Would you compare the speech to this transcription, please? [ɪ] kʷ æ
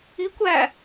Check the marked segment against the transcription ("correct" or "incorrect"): incorrect